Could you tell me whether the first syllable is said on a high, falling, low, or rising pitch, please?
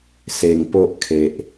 low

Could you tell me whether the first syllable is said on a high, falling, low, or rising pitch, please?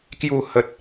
falling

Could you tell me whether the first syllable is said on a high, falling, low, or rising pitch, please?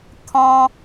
high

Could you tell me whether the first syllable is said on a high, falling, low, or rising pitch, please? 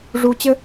low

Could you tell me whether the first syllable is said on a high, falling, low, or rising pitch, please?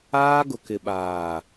high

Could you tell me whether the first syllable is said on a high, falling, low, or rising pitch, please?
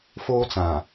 high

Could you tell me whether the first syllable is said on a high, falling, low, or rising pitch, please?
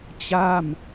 falling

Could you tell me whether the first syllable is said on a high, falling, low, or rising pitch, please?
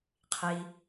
low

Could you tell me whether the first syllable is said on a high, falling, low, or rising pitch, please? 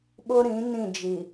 high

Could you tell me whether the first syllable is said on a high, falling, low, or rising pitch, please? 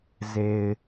low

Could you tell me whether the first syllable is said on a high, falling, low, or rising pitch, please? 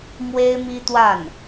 high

